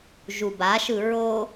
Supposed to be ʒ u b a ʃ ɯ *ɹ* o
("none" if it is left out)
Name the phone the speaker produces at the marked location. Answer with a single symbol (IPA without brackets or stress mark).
ɹ